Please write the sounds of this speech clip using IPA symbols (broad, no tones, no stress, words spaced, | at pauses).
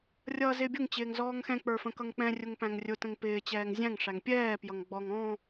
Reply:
rʲʌːzɪːbʲʊŋ t͡ɕɪːŋzɔːŋxɛ̃ k͡pə˞fə̃kʌŋk͡pɛ̃ rʲʊŋpæ̃ŋrʲʊ tə̃ŋpɪː t͡ɕɛːŋzʲæ̃ŋ ʂæŋpʲɛː pjʌŋɡ͡bɔŋ ɔ̃